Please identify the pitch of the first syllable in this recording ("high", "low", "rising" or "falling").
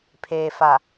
low